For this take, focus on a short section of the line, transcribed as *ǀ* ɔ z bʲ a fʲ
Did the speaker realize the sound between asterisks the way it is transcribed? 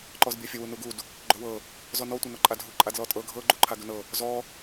no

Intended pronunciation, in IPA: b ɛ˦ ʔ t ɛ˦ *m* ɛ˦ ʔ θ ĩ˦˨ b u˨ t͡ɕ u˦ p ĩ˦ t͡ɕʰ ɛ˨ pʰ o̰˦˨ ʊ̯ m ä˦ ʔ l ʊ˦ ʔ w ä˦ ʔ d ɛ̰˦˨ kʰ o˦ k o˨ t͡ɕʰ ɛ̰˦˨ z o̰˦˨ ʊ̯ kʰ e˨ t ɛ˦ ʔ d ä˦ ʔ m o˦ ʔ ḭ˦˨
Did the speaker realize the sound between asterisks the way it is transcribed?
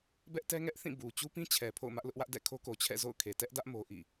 no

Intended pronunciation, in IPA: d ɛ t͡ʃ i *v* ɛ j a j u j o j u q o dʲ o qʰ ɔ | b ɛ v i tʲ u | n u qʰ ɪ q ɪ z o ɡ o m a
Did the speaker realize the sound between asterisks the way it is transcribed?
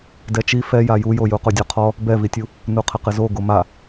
no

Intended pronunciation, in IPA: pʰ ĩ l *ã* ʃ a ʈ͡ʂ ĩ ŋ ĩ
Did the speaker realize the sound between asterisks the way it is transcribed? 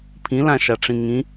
yes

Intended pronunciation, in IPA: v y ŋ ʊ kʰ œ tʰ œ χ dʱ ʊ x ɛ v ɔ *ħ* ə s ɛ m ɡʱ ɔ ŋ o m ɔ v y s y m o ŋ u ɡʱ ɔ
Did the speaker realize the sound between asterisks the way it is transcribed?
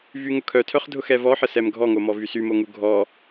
yes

